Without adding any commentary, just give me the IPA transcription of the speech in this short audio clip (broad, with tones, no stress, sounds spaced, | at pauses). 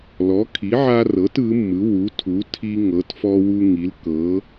l ɔ˩˥ kʰ i˩˥ ʕ a˦ r ɤ˩˥ t ɯ˩˥ mː ɯ˩˥ w u˩˥ tʰ u˩˥ tʰ i˦ ŋ ɤ˩˥ t f ɔ˦ w u˦ ŋ i˩˥ l k ɤ˩˥